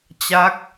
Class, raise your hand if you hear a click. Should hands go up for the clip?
no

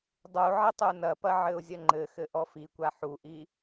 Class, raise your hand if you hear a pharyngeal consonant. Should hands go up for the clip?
yes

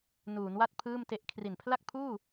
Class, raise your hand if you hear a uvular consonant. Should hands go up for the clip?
no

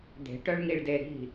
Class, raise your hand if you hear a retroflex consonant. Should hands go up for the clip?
yes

